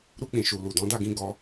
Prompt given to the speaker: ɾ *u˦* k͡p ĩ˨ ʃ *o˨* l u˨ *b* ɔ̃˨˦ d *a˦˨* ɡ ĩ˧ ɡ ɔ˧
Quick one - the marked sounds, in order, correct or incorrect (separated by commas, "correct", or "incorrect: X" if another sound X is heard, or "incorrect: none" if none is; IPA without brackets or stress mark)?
incorrect: u˧, incorrect: u˨, incorrect: d, correct